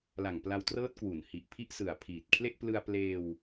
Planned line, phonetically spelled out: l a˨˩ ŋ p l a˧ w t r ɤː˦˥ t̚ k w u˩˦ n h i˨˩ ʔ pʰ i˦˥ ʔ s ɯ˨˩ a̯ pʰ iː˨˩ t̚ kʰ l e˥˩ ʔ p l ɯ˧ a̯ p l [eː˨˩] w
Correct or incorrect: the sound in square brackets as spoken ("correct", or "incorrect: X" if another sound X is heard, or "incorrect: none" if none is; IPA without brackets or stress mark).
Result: incorrect: eː˧